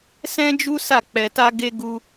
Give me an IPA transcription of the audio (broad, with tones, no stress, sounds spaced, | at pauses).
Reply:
s ɛ̃˦ d͡ʒ u˦ s a˦˨ k͡p ɛ˧ t a˦ ɡ e˦ ɡ u˦